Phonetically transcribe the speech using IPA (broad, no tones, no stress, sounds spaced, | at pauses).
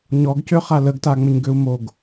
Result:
ɲ ɔ ɡ c ø χ a l ə ɡ t a ŋ͡m ə ɲ ɡ ø u̯ m o ɡ